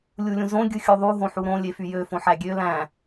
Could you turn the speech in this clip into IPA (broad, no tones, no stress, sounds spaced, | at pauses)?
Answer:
lʲ u lʲ ũ z õ ɡʲ ɯ xʲ u ðˤ u ɦ õ ħ u ɾ õ lʲ e f y j ø f õ ħ æ ɡʲ ø l æ̃